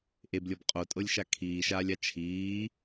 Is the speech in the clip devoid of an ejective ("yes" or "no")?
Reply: no